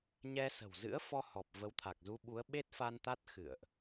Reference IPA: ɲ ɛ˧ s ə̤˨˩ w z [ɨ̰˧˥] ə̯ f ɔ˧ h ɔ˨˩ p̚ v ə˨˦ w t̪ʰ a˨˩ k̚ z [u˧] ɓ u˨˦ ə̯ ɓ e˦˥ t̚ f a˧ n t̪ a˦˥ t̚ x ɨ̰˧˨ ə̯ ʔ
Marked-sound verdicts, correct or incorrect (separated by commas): correct, correct